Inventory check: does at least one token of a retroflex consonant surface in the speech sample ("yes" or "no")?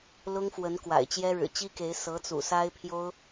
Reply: yes